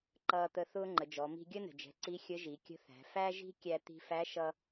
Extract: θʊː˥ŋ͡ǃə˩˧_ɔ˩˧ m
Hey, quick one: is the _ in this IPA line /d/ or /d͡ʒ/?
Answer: d͡ʒ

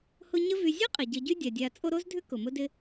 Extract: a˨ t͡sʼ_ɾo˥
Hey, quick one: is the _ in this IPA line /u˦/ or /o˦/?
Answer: o˦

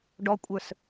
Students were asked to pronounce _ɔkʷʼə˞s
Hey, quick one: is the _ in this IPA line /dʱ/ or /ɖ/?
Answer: ɖ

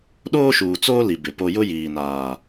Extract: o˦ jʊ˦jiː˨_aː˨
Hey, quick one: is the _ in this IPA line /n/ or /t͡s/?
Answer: n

